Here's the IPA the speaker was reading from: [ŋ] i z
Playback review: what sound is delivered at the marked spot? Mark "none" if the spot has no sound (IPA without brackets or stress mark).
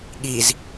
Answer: ɠ